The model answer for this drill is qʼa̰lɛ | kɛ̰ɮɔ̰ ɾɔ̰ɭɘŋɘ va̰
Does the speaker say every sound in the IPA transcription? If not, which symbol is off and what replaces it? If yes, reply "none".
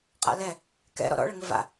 ɮ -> ɾ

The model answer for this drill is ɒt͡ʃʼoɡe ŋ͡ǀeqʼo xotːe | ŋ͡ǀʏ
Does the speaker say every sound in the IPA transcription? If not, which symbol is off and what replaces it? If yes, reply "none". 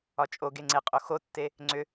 none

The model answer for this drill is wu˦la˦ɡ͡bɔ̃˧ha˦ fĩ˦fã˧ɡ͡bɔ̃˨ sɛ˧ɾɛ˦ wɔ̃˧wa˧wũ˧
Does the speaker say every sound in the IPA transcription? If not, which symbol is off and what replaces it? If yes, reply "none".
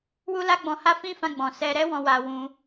none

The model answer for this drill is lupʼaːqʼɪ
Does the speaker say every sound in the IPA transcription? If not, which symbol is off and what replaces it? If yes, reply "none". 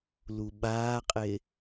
pʼ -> ɓ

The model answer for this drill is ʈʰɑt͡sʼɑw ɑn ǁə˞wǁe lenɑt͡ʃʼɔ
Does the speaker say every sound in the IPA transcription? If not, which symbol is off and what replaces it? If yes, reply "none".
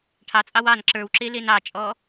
none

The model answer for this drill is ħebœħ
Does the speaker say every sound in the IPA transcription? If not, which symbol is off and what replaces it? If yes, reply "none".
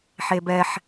œ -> ɛ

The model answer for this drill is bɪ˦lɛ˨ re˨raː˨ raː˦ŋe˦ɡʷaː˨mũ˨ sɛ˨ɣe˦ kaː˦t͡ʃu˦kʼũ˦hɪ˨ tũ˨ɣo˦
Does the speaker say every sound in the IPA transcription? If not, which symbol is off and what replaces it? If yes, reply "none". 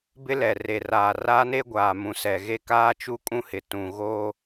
ŋ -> n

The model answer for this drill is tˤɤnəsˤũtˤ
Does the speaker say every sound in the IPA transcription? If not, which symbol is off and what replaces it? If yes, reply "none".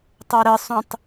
n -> ɾ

